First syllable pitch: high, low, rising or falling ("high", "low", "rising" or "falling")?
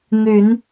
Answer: rising